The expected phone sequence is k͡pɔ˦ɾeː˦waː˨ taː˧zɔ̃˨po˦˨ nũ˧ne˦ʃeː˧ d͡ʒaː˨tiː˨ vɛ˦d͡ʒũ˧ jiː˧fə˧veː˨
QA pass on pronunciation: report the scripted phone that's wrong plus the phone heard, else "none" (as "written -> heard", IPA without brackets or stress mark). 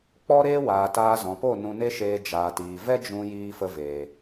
none